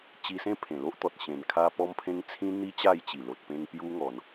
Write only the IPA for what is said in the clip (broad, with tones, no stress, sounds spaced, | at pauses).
t͡ɕ i˧ s ẽ˦ pʰ ẽ˨˩ l o˦ ʔ t̪ ɔ˨ t̚ ɕ ẽ˨˩ n kʰ a˧ p ɔ˦ m pʰ ẽ˦ ŋ t͡sʰ ĩ˦ n̪ i˦ t͡ɕ a˥˧ j t͡ɕ i˨˩ l o˨ t̚ p ẽ˧ ŋ p j u˦ ŋ ɔ˧ n